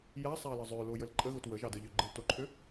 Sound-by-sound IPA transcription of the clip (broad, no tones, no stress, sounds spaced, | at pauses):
j a sˤ a l ə zˤ ø l o j ə l ǃʼ ə ɣ ʊ t w ə ʒ ɑ d ə ʎ ø ɡ͡ǃ ə l t o ǃʰ ø